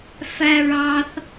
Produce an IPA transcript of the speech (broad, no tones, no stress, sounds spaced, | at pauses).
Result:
f æ ɹ ɑ θ